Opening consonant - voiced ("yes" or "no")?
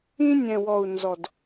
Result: yes